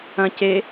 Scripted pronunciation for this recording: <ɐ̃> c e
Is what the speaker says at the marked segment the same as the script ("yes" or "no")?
yes